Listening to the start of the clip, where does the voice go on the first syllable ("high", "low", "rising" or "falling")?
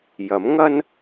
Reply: rising